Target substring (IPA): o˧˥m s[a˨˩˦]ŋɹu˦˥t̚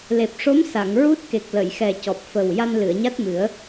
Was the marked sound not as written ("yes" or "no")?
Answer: yes